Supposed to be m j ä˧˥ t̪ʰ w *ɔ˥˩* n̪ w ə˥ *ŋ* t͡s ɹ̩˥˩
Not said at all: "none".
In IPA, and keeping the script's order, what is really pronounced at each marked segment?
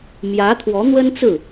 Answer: ɔ˧˥, n

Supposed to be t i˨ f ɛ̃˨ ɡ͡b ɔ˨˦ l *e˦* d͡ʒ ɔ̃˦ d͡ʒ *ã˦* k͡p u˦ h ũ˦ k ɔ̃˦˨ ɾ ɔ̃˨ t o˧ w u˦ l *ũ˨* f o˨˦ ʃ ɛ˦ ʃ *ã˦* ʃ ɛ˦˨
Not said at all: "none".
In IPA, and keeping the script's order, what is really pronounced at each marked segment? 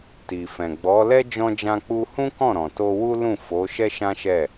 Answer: ɛ˦, ã˦, ũ˦˨, ã˦

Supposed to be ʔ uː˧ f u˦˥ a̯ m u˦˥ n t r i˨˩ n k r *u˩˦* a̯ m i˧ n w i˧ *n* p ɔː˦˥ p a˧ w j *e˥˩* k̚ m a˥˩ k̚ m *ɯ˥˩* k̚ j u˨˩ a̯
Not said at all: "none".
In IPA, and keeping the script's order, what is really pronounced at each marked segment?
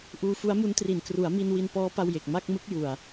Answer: u˩˦, n, e˨˩, ɯ˦˥

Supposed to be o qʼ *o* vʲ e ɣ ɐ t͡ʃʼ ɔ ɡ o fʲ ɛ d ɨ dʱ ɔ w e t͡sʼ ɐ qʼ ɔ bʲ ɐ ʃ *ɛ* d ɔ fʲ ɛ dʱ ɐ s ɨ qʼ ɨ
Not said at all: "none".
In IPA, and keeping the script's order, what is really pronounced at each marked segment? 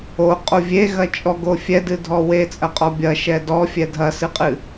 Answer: o, ɛ

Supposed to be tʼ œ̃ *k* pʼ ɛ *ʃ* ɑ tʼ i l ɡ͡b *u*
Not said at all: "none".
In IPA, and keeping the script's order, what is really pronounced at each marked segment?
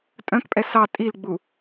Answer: k, s, u

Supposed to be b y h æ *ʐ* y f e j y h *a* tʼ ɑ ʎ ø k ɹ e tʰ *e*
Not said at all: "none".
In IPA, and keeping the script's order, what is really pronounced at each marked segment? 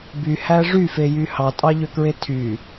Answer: ʐ, ɑ, y

